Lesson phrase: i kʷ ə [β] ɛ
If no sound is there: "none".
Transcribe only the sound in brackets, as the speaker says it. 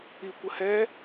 h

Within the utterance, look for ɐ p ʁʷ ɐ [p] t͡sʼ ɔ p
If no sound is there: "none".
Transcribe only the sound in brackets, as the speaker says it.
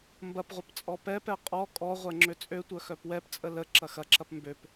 p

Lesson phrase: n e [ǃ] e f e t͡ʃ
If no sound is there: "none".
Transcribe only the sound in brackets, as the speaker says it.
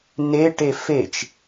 ʈ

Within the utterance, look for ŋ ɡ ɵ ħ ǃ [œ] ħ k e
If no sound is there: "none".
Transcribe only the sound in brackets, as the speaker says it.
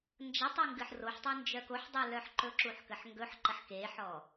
ə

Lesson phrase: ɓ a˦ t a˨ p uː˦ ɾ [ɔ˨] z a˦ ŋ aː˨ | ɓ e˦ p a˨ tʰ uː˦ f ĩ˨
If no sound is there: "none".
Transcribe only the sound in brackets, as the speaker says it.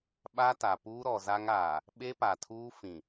ɔ˨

